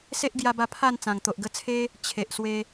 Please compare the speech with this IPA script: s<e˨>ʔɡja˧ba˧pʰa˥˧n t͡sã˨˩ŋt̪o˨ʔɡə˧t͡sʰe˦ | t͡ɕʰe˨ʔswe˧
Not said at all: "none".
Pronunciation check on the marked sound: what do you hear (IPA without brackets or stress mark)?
e˦